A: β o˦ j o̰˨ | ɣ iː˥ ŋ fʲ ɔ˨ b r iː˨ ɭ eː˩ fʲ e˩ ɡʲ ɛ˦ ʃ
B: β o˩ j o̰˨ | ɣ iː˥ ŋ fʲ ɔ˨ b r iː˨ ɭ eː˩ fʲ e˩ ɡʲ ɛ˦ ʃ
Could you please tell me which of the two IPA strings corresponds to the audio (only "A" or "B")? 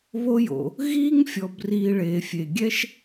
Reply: A